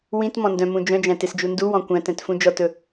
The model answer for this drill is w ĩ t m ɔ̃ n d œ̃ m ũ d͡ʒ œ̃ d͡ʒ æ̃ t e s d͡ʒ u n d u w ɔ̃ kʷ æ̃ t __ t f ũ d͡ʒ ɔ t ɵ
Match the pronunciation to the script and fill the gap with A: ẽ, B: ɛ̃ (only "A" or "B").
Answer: B